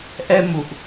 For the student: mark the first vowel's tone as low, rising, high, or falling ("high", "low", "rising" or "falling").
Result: high